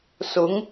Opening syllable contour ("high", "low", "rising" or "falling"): rising